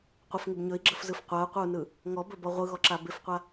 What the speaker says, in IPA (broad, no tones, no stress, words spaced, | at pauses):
qʷɪfŋɪb ɲɵi̯ɡ͡ǁəfzɯf qʷau̯qʷəu̯nɯ | ŋɔbɵbɔ ʁʷɯɣɔǁa bɪfqʷa